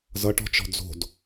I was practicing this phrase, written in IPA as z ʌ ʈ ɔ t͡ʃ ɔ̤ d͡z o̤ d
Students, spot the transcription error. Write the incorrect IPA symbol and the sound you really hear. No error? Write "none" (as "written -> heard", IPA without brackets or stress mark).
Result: ɔ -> ɔ̤